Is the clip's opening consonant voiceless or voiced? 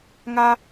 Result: voiced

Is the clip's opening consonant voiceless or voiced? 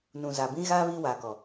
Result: voiced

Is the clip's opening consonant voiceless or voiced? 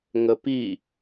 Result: voiced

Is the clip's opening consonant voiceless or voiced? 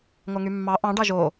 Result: voiced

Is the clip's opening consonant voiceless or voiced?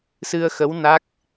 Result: voiceless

